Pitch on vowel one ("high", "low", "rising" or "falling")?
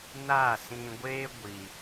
falling